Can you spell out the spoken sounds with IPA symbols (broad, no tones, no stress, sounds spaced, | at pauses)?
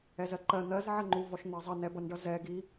ɛ z ɜ ǃ ɜ n̪ ɜ z ʕ ɜ ŋ͡ǃ u v ɔ ʃ n̪ ɜ zˤ ʌ n ɛ b ʌ n ɖ ʌ z ɛ ɡ i